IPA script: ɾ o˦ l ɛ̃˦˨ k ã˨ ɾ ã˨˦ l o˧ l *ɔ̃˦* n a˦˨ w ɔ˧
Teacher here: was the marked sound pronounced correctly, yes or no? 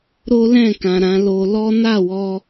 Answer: no